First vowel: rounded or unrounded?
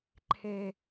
unrounded